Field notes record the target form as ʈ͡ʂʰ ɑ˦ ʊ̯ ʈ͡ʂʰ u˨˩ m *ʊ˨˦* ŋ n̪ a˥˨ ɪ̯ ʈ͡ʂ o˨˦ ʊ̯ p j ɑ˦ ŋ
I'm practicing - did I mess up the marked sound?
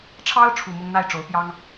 yes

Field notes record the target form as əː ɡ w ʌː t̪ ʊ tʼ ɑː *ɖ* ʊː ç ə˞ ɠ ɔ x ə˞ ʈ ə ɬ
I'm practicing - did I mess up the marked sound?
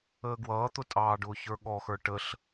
no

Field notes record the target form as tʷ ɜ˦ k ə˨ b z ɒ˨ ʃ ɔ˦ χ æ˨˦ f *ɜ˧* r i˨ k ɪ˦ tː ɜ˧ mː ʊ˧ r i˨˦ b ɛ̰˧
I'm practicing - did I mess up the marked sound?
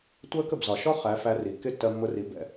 yes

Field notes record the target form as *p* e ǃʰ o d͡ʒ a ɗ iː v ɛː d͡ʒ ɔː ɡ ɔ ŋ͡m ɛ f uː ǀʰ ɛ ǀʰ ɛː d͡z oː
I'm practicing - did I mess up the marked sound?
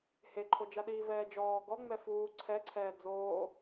yes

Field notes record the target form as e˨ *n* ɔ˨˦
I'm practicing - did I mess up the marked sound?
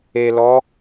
yes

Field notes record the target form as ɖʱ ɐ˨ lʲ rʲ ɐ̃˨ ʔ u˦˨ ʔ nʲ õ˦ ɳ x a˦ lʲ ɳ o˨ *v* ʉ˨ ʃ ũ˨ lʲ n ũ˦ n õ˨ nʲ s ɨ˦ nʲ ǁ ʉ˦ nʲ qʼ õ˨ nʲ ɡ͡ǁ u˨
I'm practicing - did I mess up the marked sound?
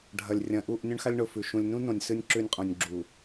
yes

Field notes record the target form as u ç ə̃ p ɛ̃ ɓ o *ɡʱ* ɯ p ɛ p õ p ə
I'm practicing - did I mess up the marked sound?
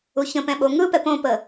yes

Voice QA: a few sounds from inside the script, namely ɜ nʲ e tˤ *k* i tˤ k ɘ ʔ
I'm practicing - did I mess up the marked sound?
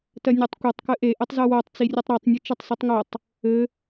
yes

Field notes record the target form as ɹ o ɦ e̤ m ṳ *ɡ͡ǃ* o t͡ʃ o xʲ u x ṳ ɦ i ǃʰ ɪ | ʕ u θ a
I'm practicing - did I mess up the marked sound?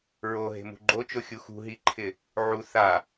no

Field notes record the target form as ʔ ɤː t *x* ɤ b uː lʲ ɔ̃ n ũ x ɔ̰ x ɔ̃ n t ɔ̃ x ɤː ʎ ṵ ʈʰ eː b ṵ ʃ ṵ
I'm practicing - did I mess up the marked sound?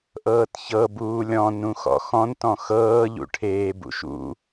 yes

